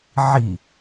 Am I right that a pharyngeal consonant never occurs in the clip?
no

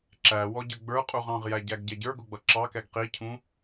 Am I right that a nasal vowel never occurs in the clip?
no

